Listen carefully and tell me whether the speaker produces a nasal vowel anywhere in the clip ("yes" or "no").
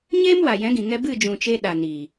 yes